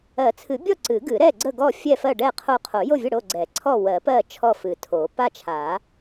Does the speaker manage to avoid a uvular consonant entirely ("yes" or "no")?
no